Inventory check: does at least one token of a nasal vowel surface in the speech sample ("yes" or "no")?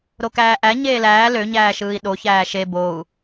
no